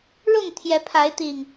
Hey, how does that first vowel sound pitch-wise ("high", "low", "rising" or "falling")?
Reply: falling